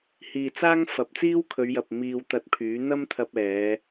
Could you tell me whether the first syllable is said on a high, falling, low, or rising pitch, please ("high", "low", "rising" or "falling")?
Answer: low